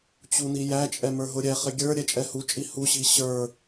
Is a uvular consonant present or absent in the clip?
present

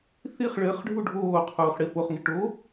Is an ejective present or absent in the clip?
absent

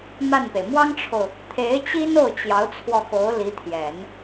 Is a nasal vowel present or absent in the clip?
absent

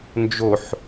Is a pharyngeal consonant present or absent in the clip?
present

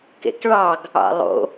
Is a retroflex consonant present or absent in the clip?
present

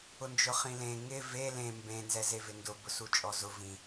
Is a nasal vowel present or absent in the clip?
present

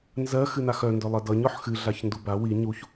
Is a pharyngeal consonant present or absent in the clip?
present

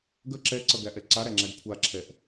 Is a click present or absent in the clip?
present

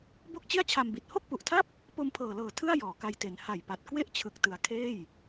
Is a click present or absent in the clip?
absent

